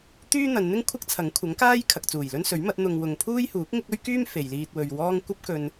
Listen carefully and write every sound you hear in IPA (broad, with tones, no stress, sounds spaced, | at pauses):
t̪ yː˥ n̪ ɐ˨˧ n n̪ ɪ˥ ŋ kʷʰ ɐ˥ k̚ t͡sʰ ɐ˨˥ ŋ kʷʰ ɐ˨˥ ŋ k aː˥ j kʰ ɐ˨ k̚ t͡s uː˨˩ j l ɵ˥ n s ɵ˨˥ ɥ m ɐ˨˥ t̚ n̪ ʊ˧ ŋ w ʊ˧ ŋ pʰ uː˥ j h uː˨˥ k̚ ŋ ɪ˥ k̚ ɵ˥ ɥ k yː˥ m f e˨ j l iː˧ t̚ w ɵ˧ ɥ w ɔː˥ ŋ kʷ ɐ˥ p̚ k ɵ˧ n